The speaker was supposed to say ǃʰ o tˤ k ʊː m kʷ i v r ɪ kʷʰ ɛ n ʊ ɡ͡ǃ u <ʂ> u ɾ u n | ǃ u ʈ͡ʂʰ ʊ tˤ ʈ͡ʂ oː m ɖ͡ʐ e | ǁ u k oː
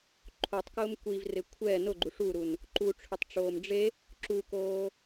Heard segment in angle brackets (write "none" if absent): ʂ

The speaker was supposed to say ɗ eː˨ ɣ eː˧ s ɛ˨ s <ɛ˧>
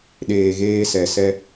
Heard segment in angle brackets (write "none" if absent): ɛ˧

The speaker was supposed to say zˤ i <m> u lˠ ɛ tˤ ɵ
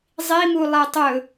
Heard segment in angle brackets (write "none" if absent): m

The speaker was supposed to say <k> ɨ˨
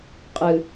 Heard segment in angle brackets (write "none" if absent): qʼ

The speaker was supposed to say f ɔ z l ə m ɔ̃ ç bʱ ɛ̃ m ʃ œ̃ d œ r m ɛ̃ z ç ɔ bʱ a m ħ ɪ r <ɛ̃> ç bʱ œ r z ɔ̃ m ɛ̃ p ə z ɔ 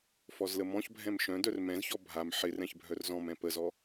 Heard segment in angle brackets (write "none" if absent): ɛ̃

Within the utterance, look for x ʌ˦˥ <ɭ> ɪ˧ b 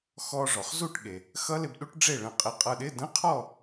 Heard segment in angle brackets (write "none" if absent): l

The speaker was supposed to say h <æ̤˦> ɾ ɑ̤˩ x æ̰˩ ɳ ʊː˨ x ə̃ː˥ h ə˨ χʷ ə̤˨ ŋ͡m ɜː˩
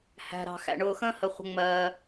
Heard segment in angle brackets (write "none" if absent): æ̤˩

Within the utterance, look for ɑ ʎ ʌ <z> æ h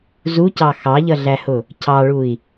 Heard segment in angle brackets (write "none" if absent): ɮ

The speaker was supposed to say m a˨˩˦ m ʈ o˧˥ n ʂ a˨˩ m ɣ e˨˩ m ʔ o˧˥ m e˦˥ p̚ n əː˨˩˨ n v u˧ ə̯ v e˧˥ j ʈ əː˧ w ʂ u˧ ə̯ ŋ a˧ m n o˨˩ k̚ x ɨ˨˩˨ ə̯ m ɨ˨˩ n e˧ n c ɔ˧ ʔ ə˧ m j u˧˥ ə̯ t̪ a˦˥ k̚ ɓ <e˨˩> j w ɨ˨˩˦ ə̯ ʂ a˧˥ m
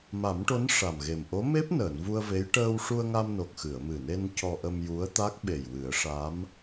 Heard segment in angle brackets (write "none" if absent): e˨˩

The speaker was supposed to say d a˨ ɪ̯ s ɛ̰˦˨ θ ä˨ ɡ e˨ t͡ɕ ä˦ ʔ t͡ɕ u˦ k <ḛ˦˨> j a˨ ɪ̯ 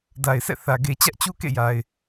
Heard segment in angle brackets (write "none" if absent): ḛ˦˨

